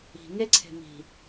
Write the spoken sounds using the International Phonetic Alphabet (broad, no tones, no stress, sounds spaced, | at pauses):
i̤ ŋ e ǀʰ e̤ m i̤